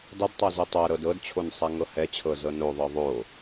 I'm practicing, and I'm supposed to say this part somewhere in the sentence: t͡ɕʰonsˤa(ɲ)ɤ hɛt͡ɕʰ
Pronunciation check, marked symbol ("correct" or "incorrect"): incorrect